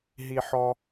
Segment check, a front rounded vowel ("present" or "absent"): absent